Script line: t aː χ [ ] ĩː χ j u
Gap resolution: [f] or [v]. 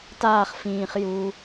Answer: f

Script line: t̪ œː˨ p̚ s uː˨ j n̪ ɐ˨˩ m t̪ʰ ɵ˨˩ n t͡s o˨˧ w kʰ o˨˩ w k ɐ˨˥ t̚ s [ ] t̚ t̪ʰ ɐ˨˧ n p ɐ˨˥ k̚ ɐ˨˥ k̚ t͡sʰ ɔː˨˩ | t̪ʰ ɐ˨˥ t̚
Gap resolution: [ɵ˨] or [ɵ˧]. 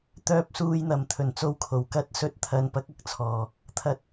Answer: ɵ˨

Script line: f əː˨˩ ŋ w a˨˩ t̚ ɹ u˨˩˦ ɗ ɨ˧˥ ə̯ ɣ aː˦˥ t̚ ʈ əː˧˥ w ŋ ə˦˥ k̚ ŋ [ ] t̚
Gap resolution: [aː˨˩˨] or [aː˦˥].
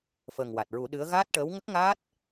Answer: aː˦˥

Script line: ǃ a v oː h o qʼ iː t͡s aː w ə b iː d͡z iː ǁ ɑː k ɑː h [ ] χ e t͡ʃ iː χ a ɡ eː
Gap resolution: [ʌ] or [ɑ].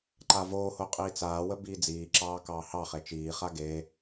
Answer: ɑ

